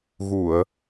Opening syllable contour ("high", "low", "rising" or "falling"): low